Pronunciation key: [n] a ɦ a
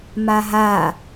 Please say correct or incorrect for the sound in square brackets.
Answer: incorrect